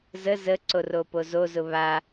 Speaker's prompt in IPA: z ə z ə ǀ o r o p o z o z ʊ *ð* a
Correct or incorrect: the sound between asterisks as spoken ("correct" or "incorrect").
incorrect